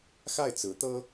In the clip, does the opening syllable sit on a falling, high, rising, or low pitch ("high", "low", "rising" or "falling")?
falling